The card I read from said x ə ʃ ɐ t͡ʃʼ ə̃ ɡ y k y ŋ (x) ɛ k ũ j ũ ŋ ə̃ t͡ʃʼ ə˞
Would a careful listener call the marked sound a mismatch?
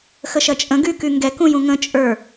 yes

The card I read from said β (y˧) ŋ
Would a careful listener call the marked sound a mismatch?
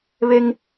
yes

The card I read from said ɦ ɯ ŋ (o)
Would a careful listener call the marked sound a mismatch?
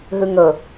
yes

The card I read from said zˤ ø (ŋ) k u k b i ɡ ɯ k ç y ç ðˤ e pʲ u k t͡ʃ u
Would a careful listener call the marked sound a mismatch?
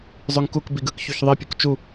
no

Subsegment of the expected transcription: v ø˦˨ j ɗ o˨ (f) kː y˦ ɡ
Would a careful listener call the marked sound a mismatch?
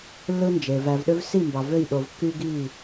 yes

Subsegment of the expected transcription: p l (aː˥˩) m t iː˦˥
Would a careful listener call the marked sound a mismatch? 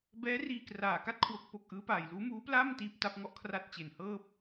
no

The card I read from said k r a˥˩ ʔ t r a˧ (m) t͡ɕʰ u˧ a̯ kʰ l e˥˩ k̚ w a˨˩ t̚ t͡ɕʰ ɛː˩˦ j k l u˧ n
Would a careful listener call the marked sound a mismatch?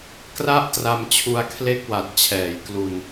no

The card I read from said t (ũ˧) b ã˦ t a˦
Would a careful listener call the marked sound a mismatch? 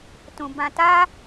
no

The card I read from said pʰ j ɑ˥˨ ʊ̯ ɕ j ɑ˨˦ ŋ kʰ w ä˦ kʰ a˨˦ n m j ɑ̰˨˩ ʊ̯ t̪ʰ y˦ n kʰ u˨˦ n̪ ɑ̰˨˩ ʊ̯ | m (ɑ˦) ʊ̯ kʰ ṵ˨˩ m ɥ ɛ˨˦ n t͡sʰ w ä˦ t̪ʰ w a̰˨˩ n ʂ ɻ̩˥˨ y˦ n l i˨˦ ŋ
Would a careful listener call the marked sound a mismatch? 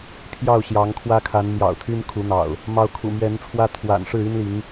yes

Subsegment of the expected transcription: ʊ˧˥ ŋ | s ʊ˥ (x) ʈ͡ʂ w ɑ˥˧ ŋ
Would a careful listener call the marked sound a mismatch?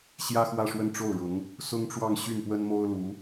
yes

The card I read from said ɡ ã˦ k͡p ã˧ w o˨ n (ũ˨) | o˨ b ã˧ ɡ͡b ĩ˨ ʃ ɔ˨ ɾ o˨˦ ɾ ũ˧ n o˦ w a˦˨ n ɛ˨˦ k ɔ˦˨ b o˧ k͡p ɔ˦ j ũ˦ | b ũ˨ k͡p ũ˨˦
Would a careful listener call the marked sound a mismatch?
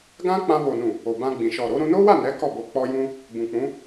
no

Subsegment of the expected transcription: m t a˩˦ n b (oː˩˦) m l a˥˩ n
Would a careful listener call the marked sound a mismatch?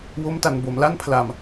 yes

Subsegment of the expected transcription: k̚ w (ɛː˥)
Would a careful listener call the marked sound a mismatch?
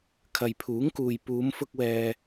no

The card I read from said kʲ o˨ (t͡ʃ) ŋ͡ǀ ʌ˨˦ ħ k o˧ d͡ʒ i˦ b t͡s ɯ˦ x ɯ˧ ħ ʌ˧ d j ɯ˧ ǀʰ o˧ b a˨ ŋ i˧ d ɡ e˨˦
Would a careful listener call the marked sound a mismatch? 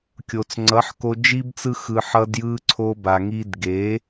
yes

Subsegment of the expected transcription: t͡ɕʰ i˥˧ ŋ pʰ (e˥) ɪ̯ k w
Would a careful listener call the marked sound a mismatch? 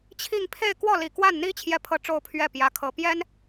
yes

